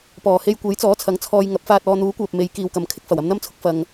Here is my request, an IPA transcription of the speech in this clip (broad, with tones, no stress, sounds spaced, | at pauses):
p ɔː˨˩ h e˧ j kʷ e˨˥ j t͡s ɔː˨˥ t͡sʰ ɐ˨˥ ŋ t͡sʰ ɔː˧ j ŋ ɐ˨˥ p̚ f aː˧ t̚ ɔː˧ n̪ uː˨˥ kʷ œː˨ p̚ m e˨˧ j k iː˨ w k ɐ˨ m kʰ ɪ˥ k̚ f ɐ˨˩ w ɐ˧ m n̪ ɐ˥ m t͡sʰ ʊ˨˥ k̚ f ɐ˧ ŋ